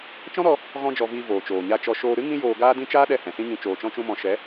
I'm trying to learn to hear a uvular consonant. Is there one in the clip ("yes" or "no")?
no